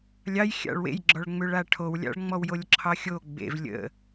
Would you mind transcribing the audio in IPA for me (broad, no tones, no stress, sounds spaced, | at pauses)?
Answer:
lʲ ɑ j xʲ ɑ̰ ɭ w ḛ j ɡ͡ǁ ɔ ɭ ŋ͡m ʏ ɭ a ʈʰ o w lʲ ɑ̰ ɭ ŋ͡m ɔ w j o lʲ ǁʰ ɑ xʲ o ɡ͡b ḛ v lʲ ə̰